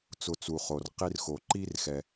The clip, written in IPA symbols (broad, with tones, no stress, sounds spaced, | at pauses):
t͡s ʊ˧ t͡s u˨ χ o˨ r q i˧ r x o˨ ǃ i˦ r x ɛ˧